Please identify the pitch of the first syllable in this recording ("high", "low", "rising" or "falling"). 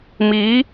rising